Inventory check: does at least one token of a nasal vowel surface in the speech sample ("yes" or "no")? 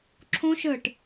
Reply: yes